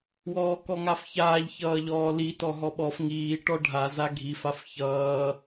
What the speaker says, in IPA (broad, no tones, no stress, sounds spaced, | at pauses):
w ɔː k ɔ ŋ a f ç aː ʎ ç ʌː ʎ ɔː l i t ɔ ɦ ɔ ɓ ɔ f ŋ iː ʈ ɔ ɖʱ a z a ɡʱ i f a f ç ʌː